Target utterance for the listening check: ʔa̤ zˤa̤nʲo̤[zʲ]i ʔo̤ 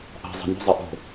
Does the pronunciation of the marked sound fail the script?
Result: yes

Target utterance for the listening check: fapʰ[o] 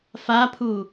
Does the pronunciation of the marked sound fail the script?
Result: yes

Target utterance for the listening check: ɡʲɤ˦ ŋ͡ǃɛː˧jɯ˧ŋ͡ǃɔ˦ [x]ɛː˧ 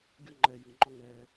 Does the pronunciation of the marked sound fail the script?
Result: yes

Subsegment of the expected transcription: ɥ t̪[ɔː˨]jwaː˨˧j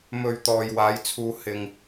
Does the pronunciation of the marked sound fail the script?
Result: no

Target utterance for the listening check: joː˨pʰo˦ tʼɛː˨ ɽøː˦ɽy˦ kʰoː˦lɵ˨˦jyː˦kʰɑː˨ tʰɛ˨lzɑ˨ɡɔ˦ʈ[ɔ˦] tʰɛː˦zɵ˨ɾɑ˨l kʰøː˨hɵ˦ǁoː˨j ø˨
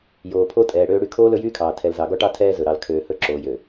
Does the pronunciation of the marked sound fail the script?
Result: yes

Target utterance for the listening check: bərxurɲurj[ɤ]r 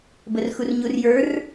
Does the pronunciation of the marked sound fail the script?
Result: yes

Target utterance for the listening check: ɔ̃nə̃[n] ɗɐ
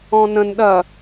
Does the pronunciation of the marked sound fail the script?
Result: no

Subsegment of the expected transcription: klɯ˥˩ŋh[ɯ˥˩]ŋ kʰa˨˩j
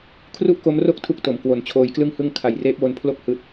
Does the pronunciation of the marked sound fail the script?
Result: no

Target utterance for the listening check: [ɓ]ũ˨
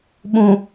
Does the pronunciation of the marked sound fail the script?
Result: no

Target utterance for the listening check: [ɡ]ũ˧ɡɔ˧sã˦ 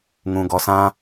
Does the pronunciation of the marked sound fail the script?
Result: yes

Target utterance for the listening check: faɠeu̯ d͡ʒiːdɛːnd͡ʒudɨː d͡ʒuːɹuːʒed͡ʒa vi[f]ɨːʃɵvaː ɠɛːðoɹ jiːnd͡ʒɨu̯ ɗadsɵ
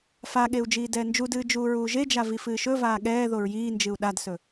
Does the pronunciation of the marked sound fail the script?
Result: no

